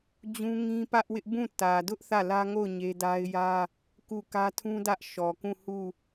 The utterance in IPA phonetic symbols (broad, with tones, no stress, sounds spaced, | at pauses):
d͡ʑ ũ˦ ŋ ĩ˦ p ä˦ ʔ w ɪ˦ ʔ b ũ˦˨ t ä˨ d ʊ˦ ʔ θ ä˦˨ l ä˦ ŋ o˦˨ ʊ̯ ɲ e˦ d a˦ ɪ̯ j ä˦ | k u˦˨ k ä˦ tʰ ũ˦ d ä˦ ʔ ʃ ɔ˨ k ũ˦˨ h u˦˨